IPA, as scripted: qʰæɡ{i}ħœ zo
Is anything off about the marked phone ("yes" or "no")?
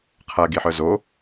no